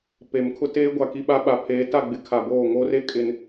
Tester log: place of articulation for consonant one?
labial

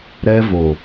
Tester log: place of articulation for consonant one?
alveolar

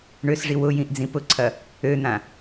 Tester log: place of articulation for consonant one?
retroflex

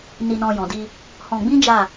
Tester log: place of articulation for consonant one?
alveolar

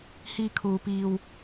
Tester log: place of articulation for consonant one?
glottal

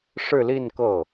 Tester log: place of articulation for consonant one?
retroflex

